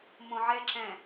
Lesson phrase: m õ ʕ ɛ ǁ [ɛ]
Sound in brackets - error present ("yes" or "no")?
yes